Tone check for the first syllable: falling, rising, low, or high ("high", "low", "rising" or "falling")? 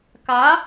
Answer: rising